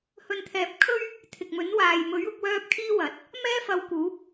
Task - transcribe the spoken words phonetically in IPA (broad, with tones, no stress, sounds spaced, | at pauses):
h ɵ˨ n t̪ʰ ɛː˨ p̚ kʰ ɵ˥ ɥ | t̪ʰ ɪ˨ k̚ m ɵ˨˥ n w aː˨ j m ɵ˨˥ ɥ ʊ˧ k̚ w œː˧ p̚ kʰ iː˥ w ɐ˨˥ t̚ | m ɛː˥ f ɐ˧ w k uː˨˥ p̚